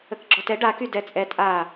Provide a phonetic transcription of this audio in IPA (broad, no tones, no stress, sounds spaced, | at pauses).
ə k ɡ͡ǁ ɔ t ɛ ɖ a k y d ɛ t͡sʼ ɛ tʼ a